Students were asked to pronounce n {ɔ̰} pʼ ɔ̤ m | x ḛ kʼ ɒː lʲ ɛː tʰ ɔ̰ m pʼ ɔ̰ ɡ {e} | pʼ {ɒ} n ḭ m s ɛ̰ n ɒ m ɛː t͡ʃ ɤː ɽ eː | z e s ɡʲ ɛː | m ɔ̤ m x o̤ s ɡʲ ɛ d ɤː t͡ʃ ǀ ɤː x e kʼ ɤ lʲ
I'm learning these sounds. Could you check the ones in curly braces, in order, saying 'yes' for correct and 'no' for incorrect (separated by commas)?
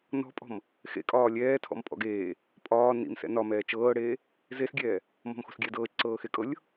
no, no, no